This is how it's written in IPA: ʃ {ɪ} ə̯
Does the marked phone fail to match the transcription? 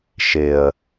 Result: no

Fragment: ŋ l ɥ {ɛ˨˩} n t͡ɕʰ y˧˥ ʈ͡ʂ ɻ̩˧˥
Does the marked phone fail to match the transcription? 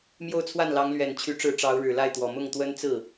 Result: no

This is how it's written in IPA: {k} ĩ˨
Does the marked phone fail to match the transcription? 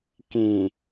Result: no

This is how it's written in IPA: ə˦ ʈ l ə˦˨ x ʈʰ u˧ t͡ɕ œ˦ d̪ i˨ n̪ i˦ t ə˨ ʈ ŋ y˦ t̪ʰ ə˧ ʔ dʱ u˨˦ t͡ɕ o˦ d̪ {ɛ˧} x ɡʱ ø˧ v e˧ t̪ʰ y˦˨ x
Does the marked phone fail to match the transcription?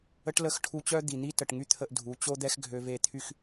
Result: yes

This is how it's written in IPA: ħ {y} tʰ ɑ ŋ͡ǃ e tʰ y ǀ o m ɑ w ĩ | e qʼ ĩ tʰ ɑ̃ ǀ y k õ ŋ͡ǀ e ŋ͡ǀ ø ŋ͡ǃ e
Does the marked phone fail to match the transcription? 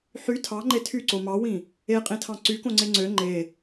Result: no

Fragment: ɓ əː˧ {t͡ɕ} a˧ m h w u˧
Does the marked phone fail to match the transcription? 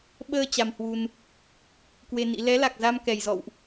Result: no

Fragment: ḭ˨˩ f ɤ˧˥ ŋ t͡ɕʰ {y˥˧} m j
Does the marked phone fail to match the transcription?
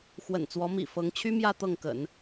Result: yes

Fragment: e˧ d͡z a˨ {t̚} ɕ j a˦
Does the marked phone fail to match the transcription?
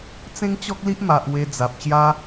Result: yes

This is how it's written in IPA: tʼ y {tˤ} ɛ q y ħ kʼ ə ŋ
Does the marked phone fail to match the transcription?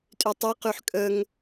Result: no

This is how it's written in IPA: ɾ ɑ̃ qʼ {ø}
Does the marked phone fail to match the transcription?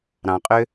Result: no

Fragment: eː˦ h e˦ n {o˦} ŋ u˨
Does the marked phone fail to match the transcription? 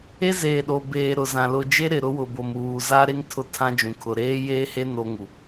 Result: no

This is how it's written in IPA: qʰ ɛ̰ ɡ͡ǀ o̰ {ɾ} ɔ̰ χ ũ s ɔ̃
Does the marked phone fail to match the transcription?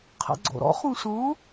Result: no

